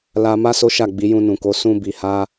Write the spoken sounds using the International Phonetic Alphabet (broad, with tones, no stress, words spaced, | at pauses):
la˧ ma˦so˦ʃa˦˨ɡ͡bi˨˦ jũ˧nũ˨ko˨˦ sũ˦ bi˧ha˦